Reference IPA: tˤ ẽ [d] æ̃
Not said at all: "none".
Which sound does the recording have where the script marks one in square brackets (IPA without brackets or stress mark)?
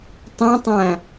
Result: tˤ